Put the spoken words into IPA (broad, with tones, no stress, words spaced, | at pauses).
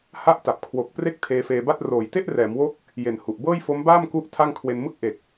ha˦˥ʔ ta˨˩p̚kʰwo˨˩k̚ pre˥˩k̚tʰeː˧feː˧ba˥˩t̚ roː˨˩jte˥˩ʔrɛː˩˦mwo˦˥k̚ | je˨˩n hu˨˩ʔbɤː˥˩j fo˦˥mbaː˥˩mku˦˥ʔ tʰa˥˩ŋkʰwe˧n mɯ˥˩k̚ʔe˨˩k̚